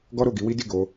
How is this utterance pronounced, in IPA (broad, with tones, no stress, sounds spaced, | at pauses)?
ɡ ɔ˦ ɾ o˦˨ ɡ i˨˦ w i˦ d i˦˨ ɡ o˧